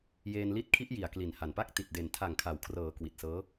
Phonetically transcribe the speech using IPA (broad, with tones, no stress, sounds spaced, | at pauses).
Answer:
j eː˧ n l i˦˥ t̚ kʰ i˦˥ ʔ j i˨˩ a̯ k l i˨˩ n h a˨˩ n p a˥˩ k̚ t i˨˩ t̚ d e˨˩ n tʰ a˨˩ ŋ kʰ a˩˦ w kʰ r ɤː˩˦ k w i˨˩ t̚ s ɤː˦˥